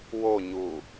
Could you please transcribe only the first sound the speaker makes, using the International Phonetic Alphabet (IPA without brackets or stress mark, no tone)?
w